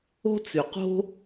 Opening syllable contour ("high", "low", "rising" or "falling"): high